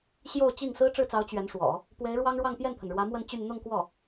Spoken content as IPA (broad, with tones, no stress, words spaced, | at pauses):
ɕjo˥˧ʊ̯t͡ɕi˥˩ŋ sɹ̩˥ʈ͡ʂɻ̩˥˩t͡sɑ˧˥ʊ̯ t͡ɕɥɛ˧˥nʂwɔ̰˨˩˦ | pwe˧˥ɪ̯ ɻwɑ˥ŋ ɻwɑ˥˧ŋpjɛ˥˩npʰə˩nɻwä˧˥ mwə˥˧nt͡ɕy˥˧n n̪ʊ˥˧ŋkwɔ˥˩